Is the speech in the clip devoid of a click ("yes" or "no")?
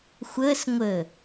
yes